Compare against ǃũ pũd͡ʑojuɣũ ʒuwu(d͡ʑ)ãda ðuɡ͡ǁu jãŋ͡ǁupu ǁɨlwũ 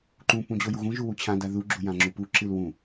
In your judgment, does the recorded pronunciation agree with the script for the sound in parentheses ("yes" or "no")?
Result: no